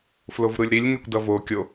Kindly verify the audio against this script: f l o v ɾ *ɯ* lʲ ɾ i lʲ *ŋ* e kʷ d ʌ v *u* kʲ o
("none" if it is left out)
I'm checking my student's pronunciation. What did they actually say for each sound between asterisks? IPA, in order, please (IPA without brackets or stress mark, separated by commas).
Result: ɯ, ŋ, o